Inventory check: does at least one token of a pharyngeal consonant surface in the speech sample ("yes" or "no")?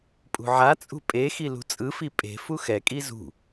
yes